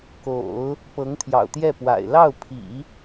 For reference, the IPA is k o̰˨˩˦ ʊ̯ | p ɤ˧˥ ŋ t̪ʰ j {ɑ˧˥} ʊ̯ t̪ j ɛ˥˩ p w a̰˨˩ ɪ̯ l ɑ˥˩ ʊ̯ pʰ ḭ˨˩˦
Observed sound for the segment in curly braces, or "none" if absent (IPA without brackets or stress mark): ɑ̰˨˩